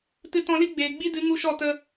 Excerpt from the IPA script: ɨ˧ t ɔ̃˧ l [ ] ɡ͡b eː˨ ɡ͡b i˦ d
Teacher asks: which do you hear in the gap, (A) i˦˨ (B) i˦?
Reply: B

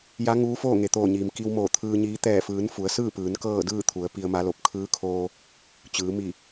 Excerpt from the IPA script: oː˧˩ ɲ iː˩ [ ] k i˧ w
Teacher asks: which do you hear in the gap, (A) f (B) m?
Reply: B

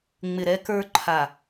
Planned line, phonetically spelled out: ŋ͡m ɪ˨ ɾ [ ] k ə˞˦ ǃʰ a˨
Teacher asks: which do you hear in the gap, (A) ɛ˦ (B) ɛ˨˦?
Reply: A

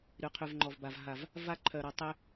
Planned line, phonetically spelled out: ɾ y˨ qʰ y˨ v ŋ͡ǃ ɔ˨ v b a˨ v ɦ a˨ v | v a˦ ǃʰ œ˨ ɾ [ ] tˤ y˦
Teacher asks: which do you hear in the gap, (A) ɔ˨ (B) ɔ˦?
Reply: A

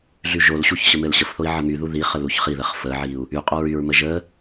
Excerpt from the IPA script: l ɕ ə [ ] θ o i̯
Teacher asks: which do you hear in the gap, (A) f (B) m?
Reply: A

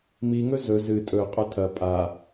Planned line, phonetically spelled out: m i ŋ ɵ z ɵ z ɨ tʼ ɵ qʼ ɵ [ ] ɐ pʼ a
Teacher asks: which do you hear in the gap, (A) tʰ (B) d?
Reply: A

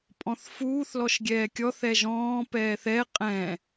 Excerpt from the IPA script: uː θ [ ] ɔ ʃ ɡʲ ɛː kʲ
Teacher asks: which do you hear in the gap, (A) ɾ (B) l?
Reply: B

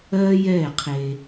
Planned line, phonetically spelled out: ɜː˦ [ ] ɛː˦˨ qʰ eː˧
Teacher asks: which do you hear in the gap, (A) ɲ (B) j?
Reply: B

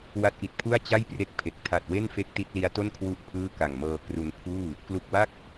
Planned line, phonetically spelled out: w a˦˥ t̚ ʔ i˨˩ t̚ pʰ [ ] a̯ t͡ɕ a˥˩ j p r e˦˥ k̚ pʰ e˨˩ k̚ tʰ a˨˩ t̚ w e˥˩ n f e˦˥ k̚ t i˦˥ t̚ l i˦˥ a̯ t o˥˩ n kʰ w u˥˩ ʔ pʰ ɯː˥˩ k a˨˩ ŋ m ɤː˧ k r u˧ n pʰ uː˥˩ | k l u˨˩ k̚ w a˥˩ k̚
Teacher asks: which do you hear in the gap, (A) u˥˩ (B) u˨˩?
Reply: A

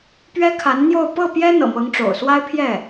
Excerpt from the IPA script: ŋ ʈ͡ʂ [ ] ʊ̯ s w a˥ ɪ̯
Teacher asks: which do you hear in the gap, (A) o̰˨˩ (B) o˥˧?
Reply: A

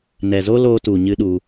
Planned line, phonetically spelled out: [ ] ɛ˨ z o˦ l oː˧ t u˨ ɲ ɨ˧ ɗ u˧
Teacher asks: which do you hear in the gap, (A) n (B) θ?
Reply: A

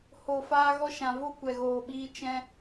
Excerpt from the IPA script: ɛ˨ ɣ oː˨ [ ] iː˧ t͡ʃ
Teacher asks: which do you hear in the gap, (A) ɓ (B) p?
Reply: A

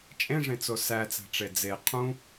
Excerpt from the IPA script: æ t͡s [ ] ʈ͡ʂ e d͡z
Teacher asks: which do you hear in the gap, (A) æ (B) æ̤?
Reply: B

